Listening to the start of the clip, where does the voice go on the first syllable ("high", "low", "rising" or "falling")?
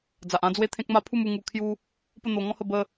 low